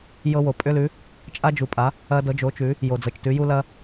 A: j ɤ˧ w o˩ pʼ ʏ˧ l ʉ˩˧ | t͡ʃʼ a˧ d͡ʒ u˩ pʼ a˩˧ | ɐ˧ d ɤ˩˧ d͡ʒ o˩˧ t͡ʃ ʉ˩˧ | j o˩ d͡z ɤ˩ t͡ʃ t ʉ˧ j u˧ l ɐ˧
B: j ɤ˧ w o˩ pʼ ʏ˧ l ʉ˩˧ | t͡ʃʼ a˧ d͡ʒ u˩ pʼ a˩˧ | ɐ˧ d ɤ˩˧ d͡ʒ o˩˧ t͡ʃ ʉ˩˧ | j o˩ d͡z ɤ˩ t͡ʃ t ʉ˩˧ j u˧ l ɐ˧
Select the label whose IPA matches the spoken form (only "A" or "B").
B